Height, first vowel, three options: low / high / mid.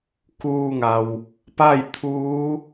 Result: high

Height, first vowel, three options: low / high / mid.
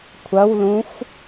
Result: low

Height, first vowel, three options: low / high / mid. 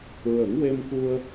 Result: mid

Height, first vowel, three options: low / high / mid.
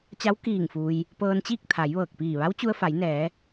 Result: low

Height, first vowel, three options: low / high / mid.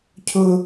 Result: high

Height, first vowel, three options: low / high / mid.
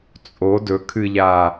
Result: mid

